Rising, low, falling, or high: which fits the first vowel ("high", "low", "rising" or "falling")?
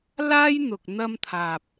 high